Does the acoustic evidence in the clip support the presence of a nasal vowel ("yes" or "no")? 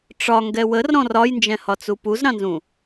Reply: yes